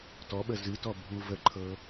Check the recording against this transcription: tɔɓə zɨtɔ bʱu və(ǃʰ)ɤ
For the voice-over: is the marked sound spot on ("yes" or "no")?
yes